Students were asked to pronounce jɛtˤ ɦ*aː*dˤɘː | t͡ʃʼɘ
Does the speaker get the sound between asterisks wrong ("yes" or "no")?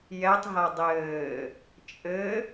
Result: yes